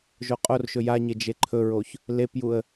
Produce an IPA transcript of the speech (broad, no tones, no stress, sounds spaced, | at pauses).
ʒ o qʼ o r ʃ ɵ j a ɲ e d͡ʒ e ǃʰ ɵ ɹ o ç | l e p j u ə̯